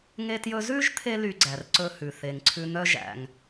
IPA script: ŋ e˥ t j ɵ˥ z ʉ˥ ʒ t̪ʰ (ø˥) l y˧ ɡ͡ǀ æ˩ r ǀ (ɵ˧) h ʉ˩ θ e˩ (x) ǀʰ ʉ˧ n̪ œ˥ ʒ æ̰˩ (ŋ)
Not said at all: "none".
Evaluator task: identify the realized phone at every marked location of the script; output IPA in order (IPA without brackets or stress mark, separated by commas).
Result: e˥, ɵ˧, ŋ, ŋ